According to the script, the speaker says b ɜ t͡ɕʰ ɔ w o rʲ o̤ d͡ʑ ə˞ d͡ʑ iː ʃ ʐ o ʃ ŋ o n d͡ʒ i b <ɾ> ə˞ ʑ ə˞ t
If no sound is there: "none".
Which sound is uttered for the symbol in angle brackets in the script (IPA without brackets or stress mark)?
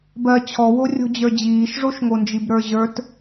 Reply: ɾ